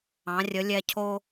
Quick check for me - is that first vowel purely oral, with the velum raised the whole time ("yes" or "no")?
no